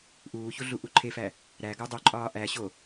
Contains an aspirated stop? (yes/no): yes